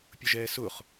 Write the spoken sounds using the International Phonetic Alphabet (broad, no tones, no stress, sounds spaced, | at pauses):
pʲ ʊ ʒ ɛː s ʊ χ